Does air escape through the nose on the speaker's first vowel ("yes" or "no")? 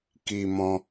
no